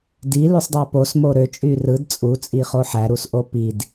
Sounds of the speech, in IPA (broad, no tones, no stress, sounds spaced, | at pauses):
d i l y sˤ dˤ æ p o s m o ɾ ø t͡ʃʼ y r ɯ d t͡sʼ u t͡sʼ i χ o ħ æ ɾ u s ʔ o p i d